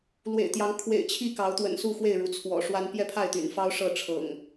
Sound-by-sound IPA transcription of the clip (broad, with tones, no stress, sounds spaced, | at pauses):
l w ḛ˨˩ ɪ̯ t̪ j ɑ˨˦ ŋ kʰ w ḛ˨˩ ɪ̯ t͡ɕʰ i˥˨ k ɑ˨˦ ʊ̯ t̪ w ə̰˨˩ n s u˥˨ x w e˥˨ ɪ̯ ɻ u˩ t͡sʰ w ɔ̰˨˩ ʂ w a˦ n p j ɛ˥˨ pʰ a˥˨ ɪ̯ t̪ y̰˨˩ n f ɑ˦ ʊ̯ ʂ ɤ˥˨ ʈ͡ʂʰ ɤ̰˨˩ ŋ